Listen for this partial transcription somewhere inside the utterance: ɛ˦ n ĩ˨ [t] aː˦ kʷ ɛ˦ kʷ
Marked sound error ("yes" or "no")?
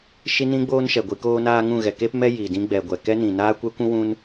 yes